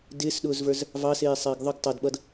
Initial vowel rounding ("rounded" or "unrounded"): unrounded